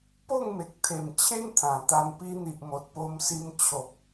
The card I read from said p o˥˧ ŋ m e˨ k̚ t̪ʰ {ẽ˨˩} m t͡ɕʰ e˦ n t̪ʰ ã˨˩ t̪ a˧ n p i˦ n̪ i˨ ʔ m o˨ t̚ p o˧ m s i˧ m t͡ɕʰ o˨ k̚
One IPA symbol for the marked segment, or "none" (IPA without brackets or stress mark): e˨˩